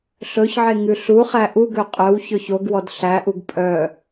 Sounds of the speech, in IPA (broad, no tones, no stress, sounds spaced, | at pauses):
ɬ ɵ ç ʕ e ŋ ʉ ɬ u χ æ ʔ u ɡ ø qʼ œ w ç ɵ ç o ɡ w ɔ d ɬ æ ʔ u ɡ pʼ œ